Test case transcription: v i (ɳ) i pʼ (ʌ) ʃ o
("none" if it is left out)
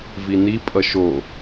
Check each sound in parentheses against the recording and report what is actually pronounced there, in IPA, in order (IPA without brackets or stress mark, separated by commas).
n, ʌ